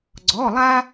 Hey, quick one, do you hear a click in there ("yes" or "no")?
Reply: yes